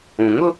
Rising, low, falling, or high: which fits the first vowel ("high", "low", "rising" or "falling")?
low